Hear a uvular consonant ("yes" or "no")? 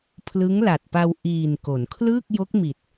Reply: no